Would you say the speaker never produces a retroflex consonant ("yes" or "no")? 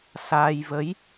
yes